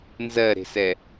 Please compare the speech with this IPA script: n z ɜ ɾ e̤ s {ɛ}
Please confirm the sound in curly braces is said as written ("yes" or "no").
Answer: yes